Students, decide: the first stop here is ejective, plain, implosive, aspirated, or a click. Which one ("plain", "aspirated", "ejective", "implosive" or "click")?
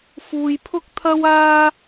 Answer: aspirated